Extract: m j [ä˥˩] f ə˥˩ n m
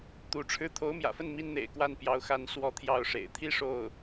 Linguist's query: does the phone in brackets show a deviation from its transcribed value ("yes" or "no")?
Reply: yes